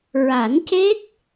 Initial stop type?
plain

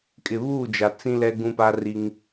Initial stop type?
ejective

